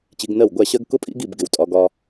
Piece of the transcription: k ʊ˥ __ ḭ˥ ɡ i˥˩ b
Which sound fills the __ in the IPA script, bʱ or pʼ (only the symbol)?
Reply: pʼ